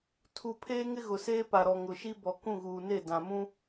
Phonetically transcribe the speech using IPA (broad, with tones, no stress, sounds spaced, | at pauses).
tʰ u˨ pʰ eː˦ ŋ ɪ˦ ɣ ʊ˨ s eː˦ p a˨ ɾ ɔ˨ ŋ ʊ˨ ʃ i˦ b ɔ˨ k ũ˦˨ ɣ uː˨ n e˦˨ d ã˨ m ũ˦